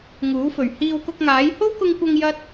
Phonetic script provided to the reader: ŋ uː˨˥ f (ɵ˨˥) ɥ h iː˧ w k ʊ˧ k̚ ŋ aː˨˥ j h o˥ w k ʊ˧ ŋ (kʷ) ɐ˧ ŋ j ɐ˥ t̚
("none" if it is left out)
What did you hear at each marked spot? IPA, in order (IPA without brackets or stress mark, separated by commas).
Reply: ɵ˨˩, kʷ